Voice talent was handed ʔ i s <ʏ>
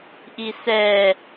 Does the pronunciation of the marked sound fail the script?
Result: yes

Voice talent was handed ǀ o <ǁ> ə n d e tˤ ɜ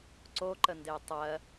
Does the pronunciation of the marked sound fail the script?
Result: yes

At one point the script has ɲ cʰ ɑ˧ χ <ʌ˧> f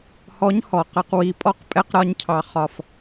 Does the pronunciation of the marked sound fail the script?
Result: yes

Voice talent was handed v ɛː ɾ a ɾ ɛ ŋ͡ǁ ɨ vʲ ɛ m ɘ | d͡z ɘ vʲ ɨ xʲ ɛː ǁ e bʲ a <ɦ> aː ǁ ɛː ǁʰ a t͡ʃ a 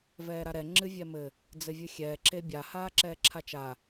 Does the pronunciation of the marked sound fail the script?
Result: yes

